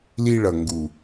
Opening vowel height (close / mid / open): close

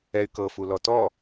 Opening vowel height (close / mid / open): mid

